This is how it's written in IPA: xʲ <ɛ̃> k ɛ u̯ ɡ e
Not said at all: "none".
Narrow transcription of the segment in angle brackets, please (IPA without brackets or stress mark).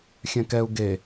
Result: ɛ̃